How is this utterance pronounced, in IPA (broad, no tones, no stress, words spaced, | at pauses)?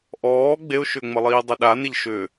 ʔɔː ɡ͡beʊ̯ʃʏːŋ͡məlˠiː dˤiɗaneʎ ʃʏ